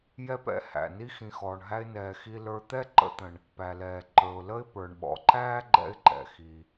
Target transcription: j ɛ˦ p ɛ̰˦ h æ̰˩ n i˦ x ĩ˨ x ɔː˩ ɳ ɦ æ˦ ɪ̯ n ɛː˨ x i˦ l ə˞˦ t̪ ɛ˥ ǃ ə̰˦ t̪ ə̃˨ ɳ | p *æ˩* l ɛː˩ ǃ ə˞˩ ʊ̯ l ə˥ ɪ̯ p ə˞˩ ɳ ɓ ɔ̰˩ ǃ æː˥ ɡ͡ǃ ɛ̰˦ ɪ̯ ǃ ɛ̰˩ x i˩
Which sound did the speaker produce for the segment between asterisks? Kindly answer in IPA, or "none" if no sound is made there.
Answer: æ˩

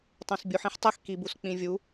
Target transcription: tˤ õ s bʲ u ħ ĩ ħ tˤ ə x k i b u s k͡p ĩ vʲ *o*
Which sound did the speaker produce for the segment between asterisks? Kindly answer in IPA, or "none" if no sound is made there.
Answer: u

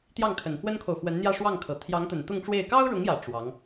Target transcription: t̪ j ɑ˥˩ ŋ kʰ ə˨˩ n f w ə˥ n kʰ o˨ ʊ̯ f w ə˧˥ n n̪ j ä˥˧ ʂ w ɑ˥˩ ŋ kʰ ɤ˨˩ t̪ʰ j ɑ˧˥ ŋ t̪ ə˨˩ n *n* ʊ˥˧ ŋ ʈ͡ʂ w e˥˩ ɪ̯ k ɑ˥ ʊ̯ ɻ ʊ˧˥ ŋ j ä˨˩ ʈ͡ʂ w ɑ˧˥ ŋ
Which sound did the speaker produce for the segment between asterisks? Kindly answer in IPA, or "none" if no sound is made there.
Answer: t̪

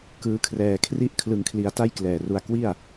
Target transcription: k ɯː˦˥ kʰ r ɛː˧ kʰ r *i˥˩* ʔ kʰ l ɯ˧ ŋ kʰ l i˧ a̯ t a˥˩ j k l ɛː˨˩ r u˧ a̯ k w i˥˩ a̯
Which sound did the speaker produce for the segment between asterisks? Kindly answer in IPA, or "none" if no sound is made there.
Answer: i˥˩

